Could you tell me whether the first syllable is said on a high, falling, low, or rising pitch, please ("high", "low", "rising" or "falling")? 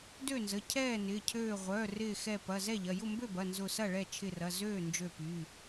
falling